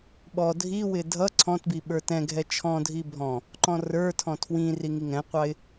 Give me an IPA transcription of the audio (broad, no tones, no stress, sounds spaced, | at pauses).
ɓ ɔ dʱ i w ɪ dʱ ʌ ǀʰ ɔ̃ t b i ɓ ə˞ t ɛ̃ ɡʱ ɛ t͡ʃʰ ɔ̃ dʱ i bʱ ɔ̃ | ǃ ɔ̃ r ə˞ tʰ ɔ̃ tʰ w ĩ r i ŋ i ŋ ɛ̃ qʷ ɑ ɪ̯